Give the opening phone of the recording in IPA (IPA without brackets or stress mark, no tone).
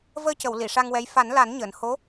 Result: v